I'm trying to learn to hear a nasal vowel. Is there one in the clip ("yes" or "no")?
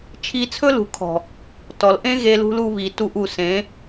yes